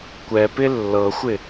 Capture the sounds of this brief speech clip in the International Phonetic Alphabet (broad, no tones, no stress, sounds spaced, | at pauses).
kʷ ɛ p ɪ lː ɤ xʷ ɪ